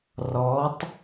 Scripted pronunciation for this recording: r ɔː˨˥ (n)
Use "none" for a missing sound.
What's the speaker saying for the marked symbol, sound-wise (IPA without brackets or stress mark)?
tˤ